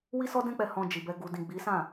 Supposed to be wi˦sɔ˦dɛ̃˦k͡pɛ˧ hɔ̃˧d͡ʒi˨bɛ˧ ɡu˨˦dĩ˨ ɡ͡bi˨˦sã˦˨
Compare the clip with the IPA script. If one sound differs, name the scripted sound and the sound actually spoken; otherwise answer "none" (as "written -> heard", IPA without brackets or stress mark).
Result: u˨˦ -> u˨